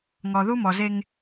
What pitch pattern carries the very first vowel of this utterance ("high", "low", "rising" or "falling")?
low